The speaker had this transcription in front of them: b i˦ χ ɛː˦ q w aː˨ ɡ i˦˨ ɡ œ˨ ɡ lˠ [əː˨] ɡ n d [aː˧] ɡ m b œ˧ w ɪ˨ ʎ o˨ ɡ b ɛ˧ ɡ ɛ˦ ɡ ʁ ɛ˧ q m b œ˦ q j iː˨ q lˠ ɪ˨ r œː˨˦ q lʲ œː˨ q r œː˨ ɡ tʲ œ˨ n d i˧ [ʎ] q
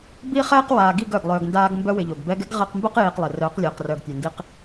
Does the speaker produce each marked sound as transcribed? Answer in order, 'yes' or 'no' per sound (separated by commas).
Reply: no, yes, no